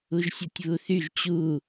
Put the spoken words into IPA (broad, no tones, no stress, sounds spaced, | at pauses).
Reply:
u ʒ sʲ ɤ tʲ β u θ y ʒ t͡ɕ u